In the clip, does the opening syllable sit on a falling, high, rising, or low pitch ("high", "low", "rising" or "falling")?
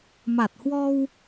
low